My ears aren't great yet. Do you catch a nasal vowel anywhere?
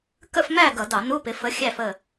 no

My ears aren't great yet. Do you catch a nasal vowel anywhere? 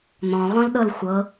yes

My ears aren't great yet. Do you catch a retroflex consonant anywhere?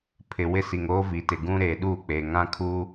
no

